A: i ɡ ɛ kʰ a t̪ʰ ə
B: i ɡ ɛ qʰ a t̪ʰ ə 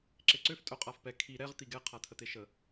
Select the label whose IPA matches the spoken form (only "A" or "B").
B